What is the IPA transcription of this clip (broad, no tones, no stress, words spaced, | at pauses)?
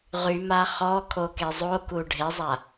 ʁyma χɔkʰoke zˤoku ɖʱezˤa